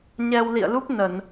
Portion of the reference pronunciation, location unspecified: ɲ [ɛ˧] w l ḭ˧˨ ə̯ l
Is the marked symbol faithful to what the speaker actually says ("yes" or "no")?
yes